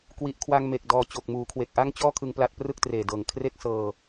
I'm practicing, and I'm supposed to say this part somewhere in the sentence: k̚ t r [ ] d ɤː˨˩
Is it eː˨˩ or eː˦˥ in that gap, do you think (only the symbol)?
eː˨˩